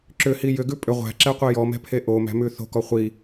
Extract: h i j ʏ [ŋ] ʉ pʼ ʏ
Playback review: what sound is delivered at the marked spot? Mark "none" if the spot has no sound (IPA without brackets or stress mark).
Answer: ɡ